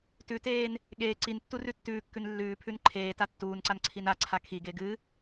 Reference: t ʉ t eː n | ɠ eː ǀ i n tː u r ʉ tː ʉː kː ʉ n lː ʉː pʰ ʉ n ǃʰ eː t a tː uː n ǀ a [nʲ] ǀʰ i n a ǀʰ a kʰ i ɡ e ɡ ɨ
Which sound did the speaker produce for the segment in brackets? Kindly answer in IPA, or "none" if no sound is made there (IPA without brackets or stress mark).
n